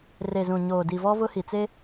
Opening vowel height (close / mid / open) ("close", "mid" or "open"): mid